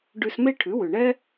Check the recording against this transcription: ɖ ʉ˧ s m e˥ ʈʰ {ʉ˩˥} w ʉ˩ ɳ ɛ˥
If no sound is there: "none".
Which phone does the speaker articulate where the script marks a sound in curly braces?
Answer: ʉ˩˥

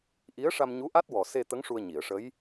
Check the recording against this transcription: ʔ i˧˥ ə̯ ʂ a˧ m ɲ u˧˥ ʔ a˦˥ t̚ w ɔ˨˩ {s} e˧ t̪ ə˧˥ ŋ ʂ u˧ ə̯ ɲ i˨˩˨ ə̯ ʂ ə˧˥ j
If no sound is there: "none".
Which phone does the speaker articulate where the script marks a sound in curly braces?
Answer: s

